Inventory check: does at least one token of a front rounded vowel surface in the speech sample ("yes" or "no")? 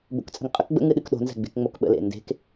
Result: no